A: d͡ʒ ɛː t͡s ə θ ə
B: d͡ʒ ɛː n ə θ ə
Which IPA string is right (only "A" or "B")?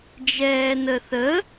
B